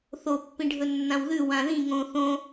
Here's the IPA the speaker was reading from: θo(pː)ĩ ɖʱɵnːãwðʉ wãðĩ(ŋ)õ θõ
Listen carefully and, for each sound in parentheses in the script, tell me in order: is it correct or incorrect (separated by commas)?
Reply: correct, correct